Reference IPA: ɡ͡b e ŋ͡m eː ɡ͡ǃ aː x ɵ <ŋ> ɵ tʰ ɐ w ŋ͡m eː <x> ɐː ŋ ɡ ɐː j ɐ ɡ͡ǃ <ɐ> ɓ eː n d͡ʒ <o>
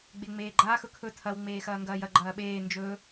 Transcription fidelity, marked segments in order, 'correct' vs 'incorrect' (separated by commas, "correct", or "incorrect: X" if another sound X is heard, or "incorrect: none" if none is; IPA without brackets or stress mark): incorrect: kʰ, correct, incorrect: ɐː, incorrect: ɵ